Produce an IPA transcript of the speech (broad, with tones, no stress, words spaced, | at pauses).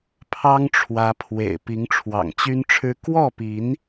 pʰɑ˦ŋʈ͡ʂʰwä˨˦pʰwḛ˨˩ɪ̯ pi˨˦ŋʈ͡ʂʰwɑ̰˨˩ŋt͡ɕy˦nʈ͡ʂʰɻ̩˦ kwɔ˥˨pi˨˦n